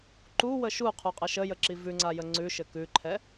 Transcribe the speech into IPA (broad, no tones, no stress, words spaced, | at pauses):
ǃuwə ʃuqʰuqʼɛ ʃəjəǁi vʉŋ͡ǀajə ŋ͡ǀʉʃɘ kʉǃʰɛ